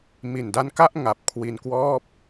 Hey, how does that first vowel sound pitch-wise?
low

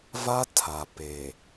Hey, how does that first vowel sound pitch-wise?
high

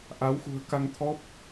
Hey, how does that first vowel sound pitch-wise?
rising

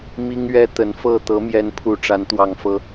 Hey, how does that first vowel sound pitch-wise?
high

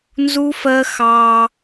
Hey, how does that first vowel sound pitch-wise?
high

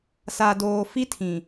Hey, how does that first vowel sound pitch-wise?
low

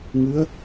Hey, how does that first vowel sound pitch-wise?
rising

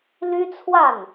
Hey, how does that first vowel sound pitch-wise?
high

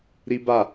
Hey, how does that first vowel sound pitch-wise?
high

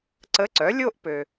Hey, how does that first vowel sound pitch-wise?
rising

